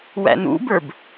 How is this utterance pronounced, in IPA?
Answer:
w æ̰ n ṵ b ə˞ b

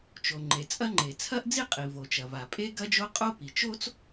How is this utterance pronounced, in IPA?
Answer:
t͡ʃ o˩ ŋ͡ǃ e˩ t͡sʼ ɐ˥ ŋ͡ǃ e˩ t͡sʰ ɐ˥ ʔ d͡z i˥ qʼ i˩ v o˩ t͡ʃ ɐ˩ v a˩ pʼ e˥ ɡ ɐ˥ d͡ʒ o˥ qʼ o˥ p i˩ t͡ʃ o˥ t͡s

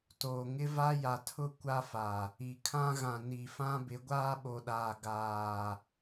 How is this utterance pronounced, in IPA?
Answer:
t oː˨ ŋ ɪ˦ v a˦ j a˨ tʰ ʊ˦ kʷ a˦ f a˨ | i˨ kʰ ã˦ ɣ ã˨ n i˨ f ã˦ b ɪ˨˦ ɡʷ aː˦ ɓ o˨ ɗ aː˨ ɡ aː˨

